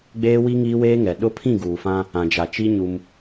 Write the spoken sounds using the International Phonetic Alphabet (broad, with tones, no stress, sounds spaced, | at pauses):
ɡ͡b eː˦ w i˦ ŋ iː˦ w eː˦ ŋ ɛ˨ ɗ ʊ˦ pʰ ĩ˦˨ ɡ uː˨ f ã˦ | ã˨ d͡ʒ a˨ t͡ʃ i˦ ɲ u˦ m